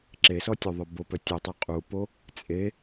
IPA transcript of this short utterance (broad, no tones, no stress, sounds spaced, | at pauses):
ǁ e s ɔ tʲ o ðˤ œ b o p œ tʲ o tˤ y qʼ u p o | t͡sʼ e